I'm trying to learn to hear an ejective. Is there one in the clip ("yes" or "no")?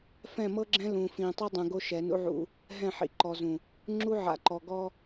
no